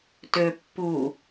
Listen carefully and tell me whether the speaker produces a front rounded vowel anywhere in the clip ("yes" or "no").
yes